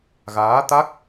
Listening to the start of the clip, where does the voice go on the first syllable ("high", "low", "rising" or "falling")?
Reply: rising